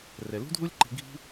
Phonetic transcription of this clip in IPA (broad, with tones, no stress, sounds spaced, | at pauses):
r ɛ˨ l ṳ˦ dʱ u˦ lʲ ǃ i̤˧ ɡʱ i̤˦